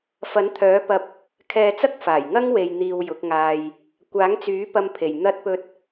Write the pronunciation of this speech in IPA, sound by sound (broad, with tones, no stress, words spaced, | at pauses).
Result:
fɐ˨˥nt̪ʰœː˨˥pɐ˧p̚ | kʰɛː˧t͡sɐ˥k̚faː˨˩j ŋɐ˥ŋwe˨jn̪iː˨w jʊ˨˥k̚ŋaː˧j | kʷaː˨˥ŋt͡syː˨˥ pɐ˧mpʰe˨˩j n̪ɐ˧t̚pɵ˧t̚